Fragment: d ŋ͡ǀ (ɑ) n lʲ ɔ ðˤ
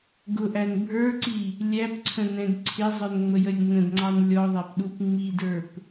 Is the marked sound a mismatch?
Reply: no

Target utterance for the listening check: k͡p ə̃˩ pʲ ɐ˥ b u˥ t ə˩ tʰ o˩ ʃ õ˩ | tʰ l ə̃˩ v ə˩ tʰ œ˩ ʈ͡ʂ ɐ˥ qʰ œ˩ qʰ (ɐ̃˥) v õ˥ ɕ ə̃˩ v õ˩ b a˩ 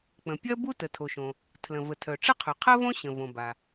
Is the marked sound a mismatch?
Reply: yes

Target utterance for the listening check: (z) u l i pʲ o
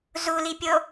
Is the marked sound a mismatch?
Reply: no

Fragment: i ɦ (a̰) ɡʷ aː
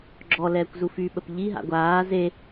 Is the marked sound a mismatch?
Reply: no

